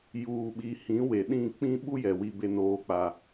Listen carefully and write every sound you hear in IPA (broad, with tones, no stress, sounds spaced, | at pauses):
j uː˨ ɓ i˨ h ĩ˨˦ w e˨ ɗ ĩ˦˨ k͡p ĩ˦ ɓ u˦ j ɛ˨ w i˦ b e˦ n oː˦ k͡p a˦